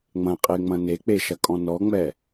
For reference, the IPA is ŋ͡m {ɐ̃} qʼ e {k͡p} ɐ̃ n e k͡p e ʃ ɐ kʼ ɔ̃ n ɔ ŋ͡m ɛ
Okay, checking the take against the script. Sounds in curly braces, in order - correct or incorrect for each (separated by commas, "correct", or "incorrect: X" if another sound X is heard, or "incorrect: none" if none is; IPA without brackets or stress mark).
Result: correct, incorrect: ŋ͡m